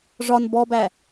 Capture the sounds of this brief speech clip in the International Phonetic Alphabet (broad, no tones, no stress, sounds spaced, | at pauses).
ʐ ɒ n b ɔ b æ